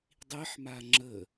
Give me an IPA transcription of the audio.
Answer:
dˤiħma ŋ͡ǁə

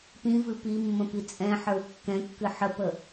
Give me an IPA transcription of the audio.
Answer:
pĩvɨ pimːə̃ pit͡sʼɛ̃ħə˞w kːɛ̃kːɨ ħəpə

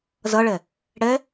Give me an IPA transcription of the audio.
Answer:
zʌɭɛ | ɽɛ

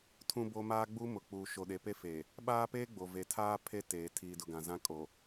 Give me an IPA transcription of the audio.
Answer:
tʰũ˦bo˦ maː˦ɡ͡bu˦mʊ˨k͡puː˨ ʃo˨ɗe˨pe˦ feː˨ | ɓaː˦peː˦ɡ͡bo˨ ve˨tʰaː˦ pʰe˦teː˨ tʰiː˨dʊ˨ ɡã˨zã˦ kʼo˨

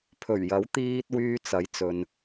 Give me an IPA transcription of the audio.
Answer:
pʰɵ˨˩ɥjɐ˨˥w t̪iː˧t̚ wyː˧t͡sɐ˨˥j t͡sɵ˧n

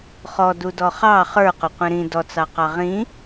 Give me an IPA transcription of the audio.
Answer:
χɔdudɔ χɑ χə˞qʊqʷĩ ɾĩ dɔt͡sɑqɑ ʁĩ

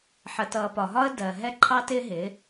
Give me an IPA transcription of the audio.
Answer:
ħə˨tʌː˨pɒ˨ɦɒ˦ə̯ dɜ˨ ɦɛ˦ǃʰɑ˦tɪː˦ɦɪː˨˦

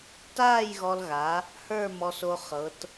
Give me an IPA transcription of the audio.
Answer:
taː˥˧jɣɔ˧lɣa˩˧ | hə˞˥˧mɔ˧so˧ χɤ˩˧t

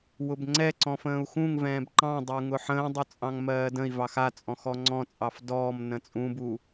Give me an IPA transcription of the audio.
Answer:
wʊbŋ͡ǀɛǀɔ̃ fə̃ːu̯xũŋvɛ̃ːb ǃɑ̃dˤəu̯ ŋʊħə̃ːdˤʊ t͡sʼɑ̃ŋmɜːdə̃i̯vɑx at͡sʼɔ̃ xɔŋ͡ǀɔ̃t͡sʼɑf dɔːm nə̃t͡sʼũbu

